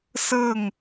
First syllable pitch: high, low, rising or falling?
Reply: falling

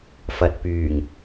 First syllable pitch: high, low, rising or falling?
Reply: low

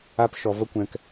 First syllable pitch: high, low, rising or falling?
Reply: high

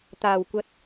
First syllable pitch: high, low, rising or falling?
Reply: low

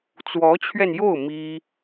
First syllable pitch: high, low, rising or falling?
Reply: rising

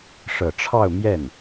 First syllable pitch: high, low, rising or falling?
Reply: low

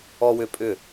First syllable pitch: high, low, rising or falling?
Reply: high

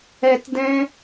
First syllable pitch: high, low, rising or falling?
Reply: low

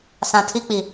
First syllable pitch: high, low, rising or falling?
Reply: low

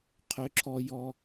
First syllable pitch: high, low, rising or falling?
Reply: high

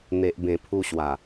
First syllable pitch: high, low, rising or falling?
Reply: low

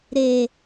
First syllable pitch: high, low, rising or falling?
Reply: low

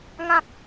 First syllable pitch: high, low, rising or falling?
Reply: high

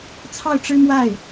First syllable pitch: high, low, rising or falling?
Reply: falling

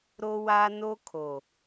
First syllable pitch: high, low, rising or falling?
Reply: high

